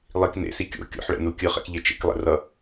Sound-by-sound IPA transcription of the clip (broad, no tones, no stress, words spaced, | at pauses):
lˠik nḛsi kʲo̰ kʲo̰ħɭɛ̰nu kʲɯχɛ̰kʎe t͡ʃḛklˠɛ̰rʌ